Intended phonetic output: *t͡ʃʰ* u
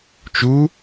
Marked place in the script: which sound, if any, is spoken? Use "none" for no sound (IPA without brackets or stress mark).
t͡ʃ